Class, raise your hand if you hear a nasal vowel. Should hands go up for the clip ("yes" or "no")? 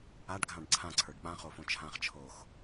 yes